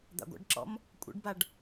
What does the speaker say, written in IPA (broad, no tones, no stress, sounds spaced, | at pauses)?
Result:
d̪ a̰ ɡʷ a̰ ɖ ǁ ɔ̰ m | kʷʼ ɛ̰ ɖ b a ɖ